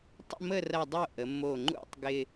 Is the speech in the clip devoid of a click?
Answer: no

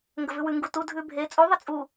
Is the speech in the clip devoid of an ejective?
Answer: no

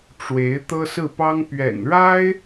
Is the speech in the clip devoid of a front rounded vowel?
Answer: yes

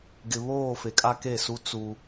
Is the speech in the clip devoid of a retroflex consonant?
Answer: yes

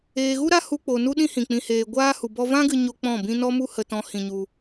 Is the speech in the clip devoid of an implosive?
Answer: no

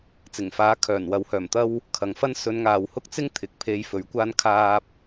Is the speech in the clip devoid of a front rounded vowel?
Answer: no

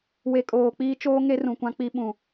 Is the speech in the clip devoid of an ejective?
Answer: no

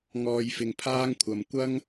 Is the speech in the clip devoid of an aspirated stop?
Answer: no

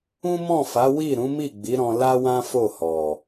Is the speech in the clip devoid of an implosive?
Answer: yes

